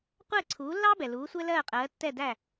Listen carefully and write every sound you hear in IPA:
qʷ ɛː˥˩ ǀʰ uː˩˥ lː ɑː˥ b ɛ˩ l uː˩˥ sʷ ɛ˥ l ɜː˥˩ qʼ ɜː˩˥ tː ɛ˥˩ d æ˥˩

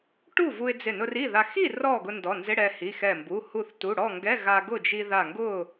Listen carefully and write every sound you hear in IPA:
ʈ u˥˨ v u˧ ɪ̯ d͡z ɪ˧˩ n ʊ˧ r i˥˨ ð a˧ x i˥˨ r ɔ˥˨ ɡ ʊ˧ n d ɔ˩˧˩ n z ɪ˧˥˧ ɽ ɛ˧ h i˩˧˩ x ɛ˧˩ m b u˩˧˩ h u˧˩ θ t u˩˧˩ ɽ ɔ˥˨ ŋ ɡ ɛ˧˥˧ ɣ a˧ ɡ ʊ˥˨ d͡ʒ i˧ ð a˧˩ ŋ ɡ ʊ˥˨

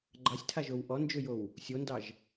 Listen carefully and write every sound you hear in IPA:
ɡ͡ǃ ɑ sʲ tʰ a ʒ o w ʔ ɔ n d͡ʒ ø j o w | sʲ o n d ɑ ʒ

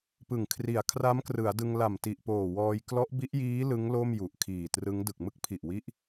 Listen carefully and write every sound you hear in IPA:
p ɯ˨˩ ŋ kʰ r i˨˩ a̯ kʰ r a˦˥ m k r ɯ˩˦ a̯ d ɯ˧ ŋ l a˨˩ m t i˨˩ ʔ p oː˨˩ w ɔː˧ j k l ɔ˦˥ ʔ b i˦˥ ʔ j iː˦˥ l ɯ˦˥ ŋ l o˥˩ m j u˨˩ ʔ kʰ iː˨˩ t r ɯ˦˥ ŋ d ɯ˨˩ k̚ m ɯ˦˥ k̚ pʰ i˨˩ ʔ w i˦˥ ʔ

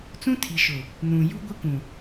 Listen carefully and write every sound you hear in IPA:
t͡s ũ˦ tʰ i˨ ʃ ʊ˨ | n ũ˨ j u˦ ɡʷ ɪ˦ k ũ˨

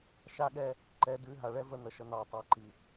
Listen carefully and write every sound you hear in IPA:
ʃ a˦ ɠ ɛ˦ | ǃ ɛ˧ d ʉ˧ ɦ a˨ ɭ ɛ˦ v ə˧ n̪ ə˨˦ ʃ ə˧ n̪ ɑ˨ tˤ ɑ˧ ǃ i˨

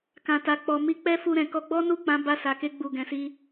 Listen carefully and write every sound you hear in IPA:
k ã˨ t a˨ k͡p ɔ˨ m i˧ k͡p ɛ˦ f u˧ ɾ ɛ̃˨ k ɔ˧ ɡ͡b ɔ˦ n u˦˨ k͡p ã˨˦ b a˧ s a˨ k e˧ ɡ͡b u˨ ɡ ɛ̃˨ s i˧

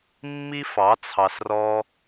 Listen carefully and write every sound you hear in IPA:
mː i˦ f ɑ˨˦ t͡sʰ ɑ˨ s r ɔ˧

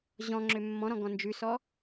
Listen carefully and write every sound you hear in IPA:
ʑ ɔ̃ ŋ͡ǁ ø mː ɔ̃ ɾ ɔ̃ ɡ ɔ̃ n d͡ʒ ʉ s ɔ

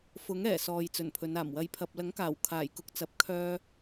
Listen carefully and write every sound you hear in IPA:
f ʊ˨˥ ŋ ɛː˨˩ s ɔː˨ j t͡s ɵ˨˩ n pʰ ɵ˨˧ n aː˨˩ m w ɐ˨˧ j pʰ ɐ˨ p̚ l ɐ˨˥ ŋ k aː˨˩ w kʰ aː˨˩ j k ʊ˨˥ k̚ t͡s ɐ˨ p̚ kʰ œː˧

